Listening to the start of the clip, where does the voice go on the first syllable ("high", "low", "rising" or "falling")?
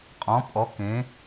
rising